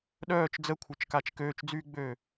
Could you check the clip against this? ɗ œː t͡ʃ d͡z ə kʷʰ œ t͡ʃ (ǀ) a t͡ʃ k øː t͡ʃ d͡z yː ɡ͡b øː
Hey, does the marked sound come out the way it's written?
no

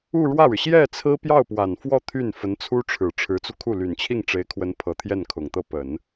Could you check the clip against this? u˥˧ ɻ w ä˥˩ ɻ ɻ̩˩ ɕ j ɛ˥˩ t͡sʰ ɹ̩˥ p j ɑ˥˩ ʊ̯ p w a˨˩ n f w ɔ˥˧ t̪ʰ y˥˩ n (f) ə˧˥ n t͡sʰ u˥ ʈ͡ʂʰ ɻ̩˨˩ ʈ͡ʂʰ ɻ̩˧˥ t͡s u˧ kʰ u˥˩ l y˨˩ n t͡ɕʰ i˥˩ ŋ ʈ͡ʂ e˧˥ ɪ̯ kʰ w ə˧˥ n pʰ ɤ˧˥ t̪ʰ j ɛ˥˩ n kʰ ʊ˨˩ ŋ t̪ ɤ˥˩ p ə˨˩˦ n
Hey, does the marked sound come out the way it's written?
yes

